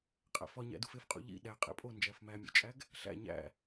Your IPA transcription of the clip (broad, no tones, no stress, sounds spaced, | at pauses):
qʼ æ̰ f ɒ ɲ æ̰ d u f e f qʼ ṵ ʎ ḭ ɗ æ qʼ ḛ pʼ o n d͡ʒ æ f m æ mʲ o̰ t͡ʃʼ æ ɡ | ɬ æ̰ ɲ æ̰